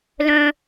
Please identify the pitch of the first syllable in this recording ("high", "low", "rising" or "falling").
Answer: high